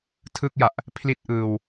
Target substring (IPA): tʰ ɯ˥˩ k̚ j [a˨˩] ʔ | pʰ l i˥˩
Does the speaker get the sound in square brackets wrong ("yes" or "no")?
no